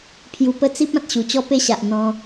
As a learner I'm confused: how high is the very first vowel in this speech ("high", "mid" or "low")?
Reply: high